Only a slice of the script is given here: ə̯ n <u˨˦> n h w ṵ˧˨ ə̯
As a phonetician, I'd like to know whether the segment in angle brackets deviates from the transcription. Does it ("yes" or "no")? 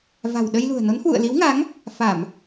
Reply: yes